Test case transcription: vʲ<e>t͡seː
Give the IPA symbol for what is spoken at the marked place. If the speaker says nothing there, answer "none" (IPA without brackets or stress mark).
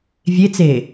e